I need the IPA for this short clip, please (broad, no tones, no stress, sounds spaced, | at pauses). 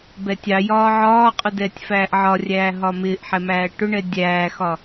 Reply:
b ɛ tʲ ɑ j ɒː ʕ ɒː qʼ ʊ d ɛː tʲ f æː ʔ ʕ ɒ rʲ æː ɦ ɒ m ɪː ʔ ħ ɛ m æː ʈ ʊ ɳ ɛ dʲ æː x ɒ